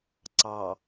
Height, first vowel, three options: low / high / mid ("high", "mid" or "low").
low